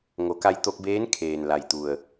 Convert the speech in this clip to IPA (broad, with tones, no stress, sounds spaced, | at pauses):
ŋ o˩˧ k a˧ j t̪ o˧ k̚ b eː˧˥ n kʰ eː˩ n l a˩ j t̪ u˩ ə̯